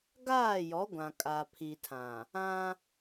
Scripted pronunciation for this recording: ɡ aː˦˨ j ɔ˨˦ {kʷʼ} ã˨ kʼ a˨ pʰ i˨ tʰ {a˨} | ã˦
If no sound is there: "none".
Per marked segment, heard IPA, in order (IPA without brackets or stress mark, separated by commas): ɡʷ, ã˨